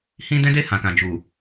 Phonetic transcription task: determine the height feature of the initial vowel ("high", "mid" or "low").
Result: high